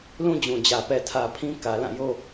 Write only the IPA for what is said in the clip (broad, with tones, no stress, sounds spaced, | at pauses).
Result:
l ũ˦ d͡ʑ ũ˨ d͡ʑ ä˨ p ɛ˨ tʰ ä˨ pʰ ĩ˦ k ä˨ l ã˦˨ j o˦